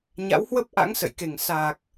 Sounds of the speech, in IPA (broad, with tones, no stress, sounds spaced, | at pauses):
ɲ a̰˧˥ w h w ə˦˥ p̚ ʔ a̰˧˥ ŋ s ə̰˧˨ j k e˨˩ ŋ s a˨˩ k̚